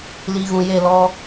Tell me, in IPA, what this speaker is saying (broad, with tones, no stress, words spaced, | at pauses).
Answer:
li˨ɣũ˨je˦˨ lɔ˦